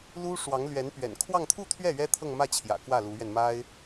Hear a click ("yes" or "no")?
no